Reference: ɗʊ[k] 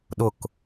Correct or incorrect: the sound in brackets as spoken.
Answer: correct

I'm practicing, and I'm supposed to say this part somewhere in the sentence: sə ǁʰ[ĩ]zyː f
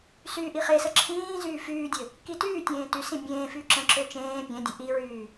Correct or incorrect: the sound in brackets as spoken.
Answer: incorrect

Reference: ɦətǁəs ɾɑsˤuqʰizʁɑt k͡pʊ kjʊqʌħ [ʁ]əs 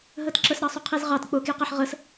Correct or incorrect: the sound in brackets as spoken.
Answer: correct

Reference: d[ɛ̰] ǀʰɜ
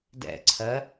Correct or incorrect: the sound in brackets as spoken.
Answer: correct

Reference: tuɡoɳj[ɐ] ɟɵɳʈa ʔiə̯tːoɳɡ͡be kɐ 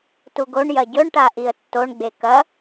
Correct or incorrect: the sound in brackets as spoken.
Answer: correct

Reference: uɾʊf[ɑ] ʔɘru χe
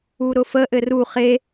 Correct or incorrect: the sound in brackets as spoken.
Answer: incorrect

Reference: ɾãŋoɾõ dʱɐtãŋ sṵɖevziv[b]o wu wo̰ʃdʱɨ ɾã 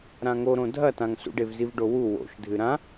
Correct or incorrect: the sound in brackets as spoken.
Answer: incorrect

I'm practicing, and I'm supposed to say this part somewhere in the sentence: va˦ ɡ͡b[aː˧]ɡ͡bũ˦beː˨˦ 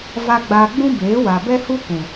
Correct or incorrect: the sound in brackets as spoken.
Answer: correct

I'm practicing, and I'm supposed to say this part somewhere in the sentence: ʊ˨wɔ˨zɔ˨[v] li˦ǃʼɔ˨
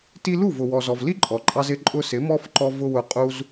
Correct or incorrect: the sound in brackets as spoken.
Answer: correct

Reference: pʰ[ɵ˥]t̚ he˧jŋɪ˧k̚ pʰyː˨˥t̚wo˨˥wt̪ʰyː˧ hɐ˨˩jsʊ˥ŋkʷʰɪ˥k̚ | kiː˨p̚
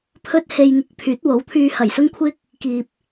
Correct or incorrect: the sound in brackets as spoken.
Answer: correct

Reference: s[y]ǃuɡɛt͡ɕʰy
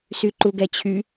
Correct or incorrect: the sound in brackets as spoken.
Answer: correct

